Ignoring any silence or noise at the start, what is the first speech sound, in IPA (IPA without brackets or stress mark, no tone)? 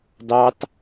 d